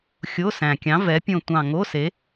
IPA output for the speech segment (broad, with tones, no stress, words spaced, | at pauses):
xʲo˧˥˧sæ̃˨˩kʲɑ̃˨˥ vɛ˨˥pʲõ˦˨ tʷɑ̃˦˨ ŋo˧˥˧ se˨˥